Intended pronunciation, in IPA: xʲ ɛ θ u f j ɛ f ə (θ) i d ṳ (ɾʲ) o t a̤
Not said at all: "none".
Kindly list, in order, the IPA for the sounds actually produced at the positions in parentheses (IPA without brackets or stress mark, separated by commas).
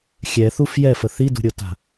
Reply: θ, ɾʲ